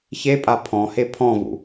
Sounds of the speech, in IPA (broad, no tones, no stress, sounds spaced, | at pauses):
ç e pʼ a pʰ ɔ̃ h e pʰ ɔ̃ v ṵ